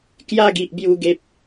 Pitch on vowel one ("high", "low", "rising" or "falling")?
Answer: falling